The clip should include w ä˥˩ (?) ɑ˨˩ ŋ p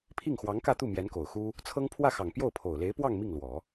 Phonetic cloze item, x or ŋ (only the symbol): x